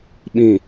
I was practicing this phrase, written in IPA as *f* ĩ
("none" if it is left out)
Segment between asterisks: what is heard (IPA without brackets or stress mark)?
ɓ